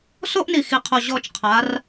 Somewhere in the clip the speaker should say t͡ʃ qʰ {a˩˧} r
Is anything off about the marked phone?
no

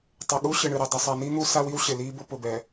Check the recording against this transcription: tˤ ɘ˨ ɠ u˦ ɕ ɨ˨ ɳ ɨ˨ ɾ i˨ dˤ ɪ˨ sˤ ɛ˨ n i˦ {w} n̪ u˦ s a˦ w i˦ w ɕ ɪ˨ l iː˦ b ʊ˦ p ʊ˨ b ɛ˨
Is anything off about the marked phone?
yes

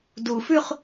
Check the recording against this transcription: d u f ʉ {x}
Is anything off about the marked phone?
yes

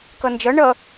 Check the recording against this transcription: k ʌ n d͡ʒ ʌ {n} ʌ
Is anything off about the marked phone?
yes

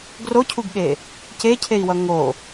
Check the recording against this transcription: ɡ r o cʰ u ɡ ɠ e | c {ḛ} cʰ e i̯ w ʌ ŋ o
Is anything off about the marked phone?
yes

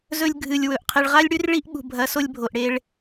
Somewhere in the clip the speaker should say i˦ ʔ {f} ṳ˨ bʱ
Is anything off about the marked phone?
yes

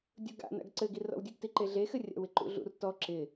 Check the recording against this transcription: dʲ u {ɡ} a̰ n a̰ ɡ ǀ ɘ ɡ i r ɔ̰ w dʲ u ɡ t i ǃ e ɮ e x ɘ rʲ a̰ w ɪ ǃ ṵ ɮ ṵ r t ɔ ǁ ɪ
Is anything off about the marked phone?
no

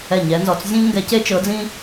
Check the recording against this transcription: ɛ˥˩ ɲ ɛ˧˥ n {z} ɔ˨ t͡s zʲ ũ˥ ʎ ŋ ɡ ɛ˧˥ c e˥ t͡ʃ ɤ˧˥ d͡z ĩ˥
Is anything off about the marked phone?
no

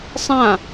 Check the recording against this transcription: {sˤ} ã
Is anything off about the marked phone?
no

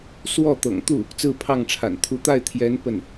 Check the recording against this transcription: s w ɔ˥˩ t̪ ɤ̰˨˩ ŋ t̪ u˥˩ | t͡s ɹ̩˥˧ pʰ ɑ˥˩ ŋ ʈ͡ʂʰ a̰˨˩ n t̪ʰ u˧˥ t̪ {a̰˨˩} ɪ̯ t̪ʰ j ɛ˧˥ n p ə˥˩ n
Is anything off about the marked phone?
yes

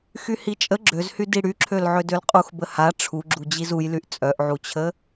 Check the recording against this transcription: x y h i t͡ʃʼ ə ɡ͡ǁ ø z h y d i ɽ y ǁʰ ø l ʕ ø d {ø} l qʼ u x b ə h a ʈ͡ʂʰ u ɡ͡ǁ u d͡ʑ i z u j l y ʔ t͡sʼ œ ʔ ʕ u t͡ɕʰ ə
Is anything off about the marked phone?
no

